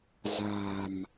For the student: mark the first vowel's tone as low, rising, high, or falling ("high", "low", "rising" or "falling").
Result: low